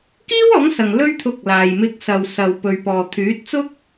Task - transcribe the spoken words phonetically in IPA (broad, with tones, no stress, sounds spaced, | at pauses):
k iː˥ w ɔː˨˥ ŋ s ɐ˨ ŋ l ɵ˥ ɥ t̪ʰ ʊ˧ k̚ l aː˨ j m ɪ˨˥ k̚ s ɐ˨ w s ɐ˨ w p ɵ˨ ɥ p ɔː˨ t̪ʰ yː˨˥ t̚ t͡s ʊ˥ k̚